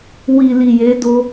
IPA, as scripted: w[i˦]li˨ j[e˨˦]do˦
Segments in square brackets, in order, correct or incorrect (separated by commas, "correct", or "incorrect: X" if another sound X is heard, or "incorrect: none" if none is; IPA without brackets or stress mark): incorrect: i˨, correct